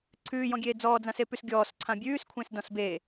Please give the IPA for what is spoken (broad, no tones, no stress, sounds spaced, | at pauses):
ǀʰ ʉː j ɔ̃ ɡʲ eː d͡z ɔː d͡z ã s e p ʉ s ɡʲ ɔː s ǀʰ ã bʲ ʉː s kʷʰ ẽ s d ɔ̃ s b eː